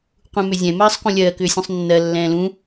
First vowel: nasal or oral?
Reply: nasal